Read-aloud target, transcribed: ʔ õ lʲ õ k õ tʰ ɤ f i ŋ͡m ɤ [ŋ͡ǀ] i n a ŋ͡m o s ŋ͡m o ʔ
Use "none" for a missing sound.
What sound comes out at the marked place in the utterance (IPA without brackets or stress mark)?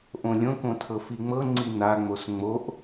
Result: ŋ͡ǀ